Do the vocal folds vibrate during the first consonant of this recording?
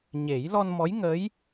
yes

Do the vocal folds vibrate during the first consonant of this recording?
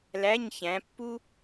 yes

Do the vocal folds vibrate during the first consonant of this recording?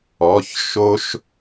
no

